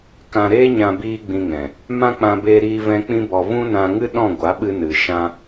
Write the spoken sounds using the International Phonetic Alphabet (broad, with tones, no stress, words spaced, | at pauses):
kã˧ɾeː˦ɲã˧ biː˦ɡ͡bĩ˧ŋɛ̃˨ | mã˦ k͡pã˦beː˦ɾiː˦vɛ̃˦ k͡pĩ˦bɔ˧ vũ˦nã˧ŋɨ˦ ɗɔ̃˦˨ɡʷa˨˦ɓɨ˧ nɨ˨ ʃã˧